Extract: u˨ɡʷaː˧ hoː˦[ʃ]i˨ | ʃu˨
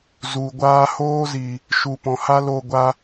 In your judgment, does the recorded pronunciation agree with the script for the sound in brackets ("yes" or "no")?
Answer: no